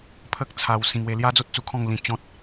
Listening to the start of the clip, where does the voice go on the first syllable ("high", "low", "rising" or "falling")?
high